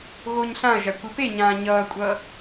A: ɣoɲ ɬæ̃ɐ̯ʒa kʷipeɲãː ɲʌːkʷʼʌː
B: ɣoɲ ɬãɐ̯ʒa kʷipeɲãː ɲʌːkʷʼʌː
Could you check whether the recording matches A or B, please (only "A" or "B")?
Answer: B